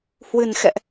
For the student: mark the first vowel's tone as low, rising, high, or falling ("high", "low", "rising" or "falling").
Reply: low